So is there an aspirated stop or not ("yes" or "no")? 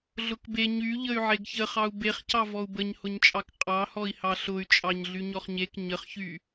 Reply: no